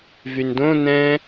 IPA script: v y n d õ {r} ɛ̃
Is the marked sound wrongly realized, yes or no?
yes